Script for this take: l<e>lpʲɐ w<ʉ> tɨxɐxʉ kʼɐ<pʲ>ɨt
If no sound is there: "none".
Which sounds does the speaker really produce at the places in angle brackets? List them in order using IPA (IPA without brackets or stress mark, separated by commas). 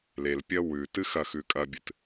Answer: e, ʉ, bʲ